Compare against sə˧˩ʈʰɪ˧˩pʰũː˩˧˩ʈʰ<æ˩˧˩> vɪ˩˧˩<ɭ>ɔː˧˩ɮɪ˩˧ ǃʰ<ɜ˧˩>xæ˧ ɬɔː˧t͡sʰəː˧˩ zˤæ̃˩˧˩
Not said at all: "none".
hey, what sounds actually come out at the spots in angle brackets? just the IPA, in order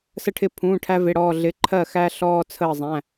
æ˧, ɽ, ɜ˧˩

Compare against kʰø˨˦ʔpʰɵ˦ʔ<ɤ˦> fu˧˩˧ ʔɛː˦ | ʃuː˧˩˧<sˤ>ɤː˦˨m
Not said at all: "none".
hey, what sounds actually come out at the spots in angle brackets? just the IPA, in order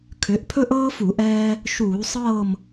ɤː˦, sˤ

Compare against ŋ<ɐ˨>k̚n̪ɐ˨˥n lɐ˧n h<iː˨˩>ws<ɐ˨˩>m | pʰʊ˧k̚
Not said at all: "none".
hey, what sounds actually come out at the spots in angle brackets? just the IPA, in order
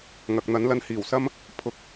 ɐ˨, iː˨˩, ɐ˥

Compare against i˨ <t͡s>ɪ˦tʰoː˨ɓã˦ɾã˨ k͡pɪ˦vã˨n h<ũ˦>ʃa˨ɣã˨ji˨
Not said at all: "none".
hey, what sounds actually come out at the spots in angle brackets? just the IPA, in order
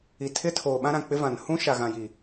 tʰ, ũ˦

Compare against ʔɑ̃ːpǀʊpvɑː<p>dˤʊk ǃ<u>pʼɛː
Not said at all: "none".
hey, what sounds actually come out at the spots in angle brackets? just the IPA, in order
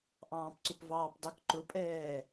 p, ʊ

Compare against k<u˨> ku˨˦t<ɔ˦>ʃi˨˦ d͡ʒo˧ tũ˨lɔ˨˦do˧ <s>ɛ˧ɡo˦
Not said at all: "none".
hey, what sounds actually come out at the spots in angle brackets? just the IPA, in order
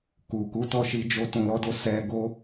u˨, ɔ˦˨, s

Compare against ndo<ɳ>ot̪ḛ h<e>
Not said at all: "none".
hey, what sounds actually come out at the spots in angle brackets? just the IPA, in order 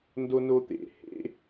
n, ḛ

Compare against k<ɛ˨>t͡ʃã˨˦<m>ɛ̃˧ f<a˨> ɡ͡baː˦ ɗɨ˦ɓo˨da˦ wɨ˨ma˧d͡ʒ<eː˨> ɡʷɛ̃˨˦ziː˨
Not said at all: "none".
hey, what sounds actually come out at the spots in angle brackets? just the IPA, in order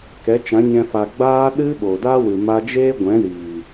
ɛ˨˦, ɲ, a˨, eː˦

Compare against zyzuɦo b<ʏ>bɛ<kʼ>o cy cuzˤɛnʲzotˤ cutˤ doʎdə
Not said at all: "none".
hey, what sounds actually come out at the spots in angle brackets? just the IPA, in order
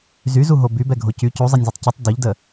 y, ɡʱ

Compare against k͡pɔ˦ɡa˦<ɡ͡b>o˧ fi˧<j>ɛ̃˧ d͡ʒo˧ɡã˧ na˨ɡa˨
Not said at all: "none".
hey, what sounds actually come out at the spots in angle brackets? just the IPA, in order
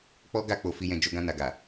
k͡p, j

